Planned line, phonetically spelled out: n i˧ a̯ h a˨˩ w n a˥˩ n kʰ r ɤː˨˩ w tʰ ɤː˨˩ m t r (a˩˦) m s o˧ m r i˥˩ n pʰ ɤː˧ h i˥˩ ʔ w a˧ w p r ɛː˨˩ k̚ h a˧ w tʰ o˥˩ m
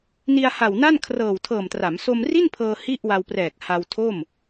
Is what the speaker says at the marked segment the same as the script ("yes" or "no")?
yes